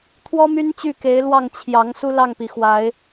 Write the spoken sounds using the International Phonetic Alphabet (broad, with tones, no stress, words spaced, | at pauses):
t̪ʰwɔ˦my˦n t͡ɕy˥˨ke˨˦ɪ̯ lwɑ˥˨ŋ t͡ɕʰjɑ˨˦ŋ su˦lɑ˥˨ŋpi˩ xwa˨˦ɪ̯